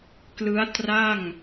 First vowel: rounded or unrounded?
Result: unrounded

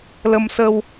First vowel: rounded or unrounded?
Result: unrounded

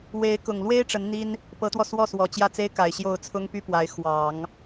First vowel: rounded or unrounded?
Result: unrounded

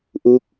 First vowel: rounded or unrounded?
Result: rounded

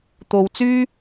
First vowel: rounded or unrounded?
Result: rounded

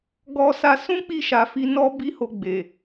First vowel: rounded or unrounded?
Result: rounded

